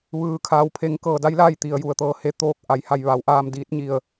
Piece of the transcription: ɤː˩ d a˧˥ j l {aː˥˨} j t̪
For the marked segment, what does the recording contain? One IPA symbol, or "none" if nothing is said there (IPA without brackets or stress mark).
aː˥˨